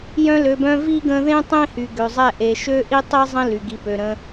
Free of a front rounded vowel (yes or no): no